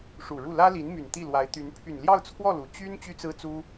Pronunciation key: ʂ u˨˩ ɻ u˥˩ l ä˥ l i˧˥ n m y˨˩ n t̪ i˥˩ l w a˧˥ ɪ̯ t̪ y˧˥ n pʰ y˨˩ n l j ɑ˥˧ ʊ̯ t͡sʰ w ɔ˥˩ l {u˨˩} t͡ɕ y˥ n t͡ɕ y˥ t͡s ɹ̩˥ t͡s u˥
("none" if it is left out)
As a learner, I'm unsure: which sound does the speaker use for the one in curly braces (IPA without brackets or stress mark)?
u˨˩